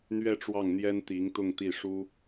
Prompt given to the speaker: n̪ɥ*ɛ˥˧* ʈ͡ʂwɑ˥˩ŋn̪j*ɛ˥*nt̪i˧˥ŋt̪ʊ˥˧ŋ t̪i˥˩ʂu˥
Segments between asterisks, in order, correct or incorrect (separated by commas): correct, correct